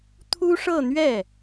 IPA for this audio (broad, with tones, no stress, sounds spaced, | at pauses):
t̪ʰ u˥ ʂ ɤ˥˧ n̪ ɥ ɛ˥˩